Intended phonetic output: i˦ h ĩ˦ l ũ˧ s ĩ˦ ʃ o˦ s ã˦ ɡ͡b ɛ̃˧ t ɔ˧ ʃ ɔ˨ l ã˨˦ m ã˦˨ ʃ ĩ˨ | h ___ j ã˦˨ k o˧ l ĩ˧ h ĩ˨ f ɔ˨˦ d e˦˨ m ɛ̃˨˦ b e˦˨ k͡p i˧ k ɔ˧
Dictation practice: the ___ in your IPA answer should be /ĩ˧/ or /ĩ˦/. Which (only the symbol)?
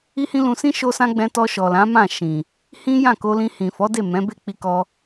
ĩ˦